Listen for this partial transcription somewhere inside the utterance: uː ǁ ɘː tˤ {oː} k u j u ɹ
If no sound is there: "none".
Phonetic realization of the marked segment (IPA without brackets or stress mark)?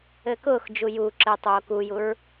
oː